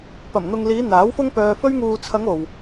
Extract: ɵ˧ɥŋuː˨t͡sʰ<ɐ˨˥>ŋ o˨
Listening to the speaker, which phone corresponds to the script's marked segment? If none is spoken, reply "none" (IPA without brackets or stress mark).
ɐ˨˧